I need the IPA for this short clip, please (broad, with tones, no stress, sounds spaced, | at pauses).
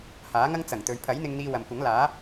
h aː˨˥ ŋ ɐ˥ ŋ t͡s ɐ˨˩ ŋ t̪ ɵ˨ ɥ pʰ ɐ˨˥ j n̪ ɪ˧ ŋ n̪ iː˧ w ɐ˨ m kʷ ɐ˨˥ ŋ l aː˨˥